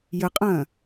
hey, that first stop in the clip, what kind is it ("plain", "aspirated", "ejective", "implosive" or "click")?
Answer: ejective